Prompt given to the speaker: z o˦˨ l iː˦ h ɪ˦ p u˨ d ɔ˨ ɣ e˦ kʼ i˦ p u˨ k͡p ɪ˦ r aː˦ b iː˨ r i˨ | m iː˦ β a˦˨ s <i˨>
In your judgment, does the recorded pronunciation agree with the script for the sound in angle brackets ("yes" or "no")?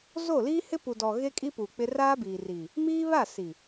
yes